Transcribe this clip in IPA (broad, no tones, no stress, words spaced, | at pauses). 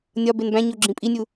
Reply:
nʲɒ benbæ̃ɲo ɡ͡ǁĩpʼinʲu